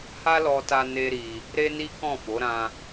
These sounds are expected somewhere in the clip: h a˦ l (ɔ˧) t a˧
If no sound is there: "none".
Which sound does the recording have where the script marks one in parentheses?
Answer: ɔ˧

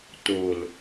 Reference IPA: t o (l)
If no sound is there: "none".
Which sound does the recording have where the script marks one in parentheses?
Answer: l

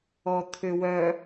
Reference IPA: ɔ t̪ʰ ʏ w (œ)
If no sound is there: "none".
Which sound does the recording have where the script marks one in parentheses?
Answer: œ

